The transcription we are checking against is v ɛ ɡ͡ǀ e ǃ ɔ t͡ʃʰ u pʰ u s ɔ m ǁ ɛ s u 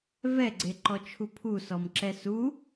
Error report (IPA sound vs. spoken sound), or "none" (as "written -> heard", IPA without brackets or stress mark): none